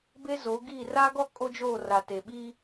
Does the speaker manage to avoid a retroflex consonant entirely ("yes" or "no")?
yes